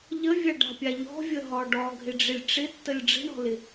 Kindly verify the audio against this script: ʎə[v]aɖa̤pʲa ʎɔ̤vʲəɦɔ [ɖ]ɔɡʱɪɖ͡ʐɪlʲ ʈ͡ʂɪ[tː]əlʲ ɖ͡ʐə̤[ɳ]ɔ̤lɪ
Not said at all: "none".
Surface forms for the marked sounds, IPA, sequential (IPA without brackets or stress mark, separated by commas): vʲ, ɖ, tː, ɳ